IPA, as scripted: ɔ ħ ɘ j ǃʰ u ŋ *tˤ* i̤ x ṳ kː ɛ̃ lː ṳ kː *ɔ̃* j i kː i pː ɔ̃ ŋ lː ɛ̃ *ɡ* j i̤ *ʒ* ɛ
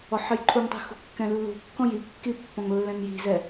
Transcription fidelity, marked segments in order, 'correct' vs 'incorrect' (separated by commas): correct, correct, incorrect, incorrect